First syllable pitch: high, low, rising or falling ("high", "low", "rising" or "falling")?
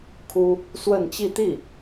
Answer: high